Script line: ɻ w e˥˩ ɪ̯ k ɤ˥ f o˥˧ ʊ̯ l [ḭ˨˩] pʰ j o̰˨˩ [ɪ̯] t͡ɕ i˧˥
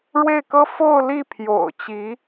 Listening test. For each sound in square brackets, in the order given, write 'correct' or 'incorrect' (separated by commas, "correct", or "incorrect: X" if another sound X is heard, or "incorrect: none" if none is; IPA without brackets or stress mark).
incorrect: i˥˩, incorrect: ʊ̯